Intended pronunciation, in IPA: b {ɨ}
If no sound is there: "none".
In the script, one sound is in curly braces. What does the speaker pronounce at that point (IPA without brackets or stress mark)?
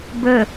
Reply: ə